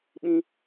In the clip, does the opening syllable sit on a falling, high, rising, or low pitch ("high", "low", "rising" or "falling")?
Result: high